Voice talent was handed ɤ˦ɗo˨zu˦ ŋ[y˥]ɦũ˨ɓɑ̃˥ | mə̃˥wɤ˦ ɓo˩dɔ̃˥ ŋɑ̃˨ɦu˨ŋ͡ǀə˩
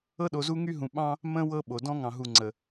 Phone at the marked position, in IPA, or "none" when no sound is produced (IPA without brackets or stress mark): y˥